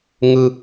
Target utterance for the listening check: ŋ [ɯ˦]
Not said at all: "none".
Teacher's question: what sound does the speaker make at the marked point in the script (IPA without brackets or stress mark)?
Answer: ɯ˦